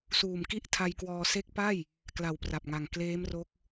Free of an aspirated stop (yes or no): no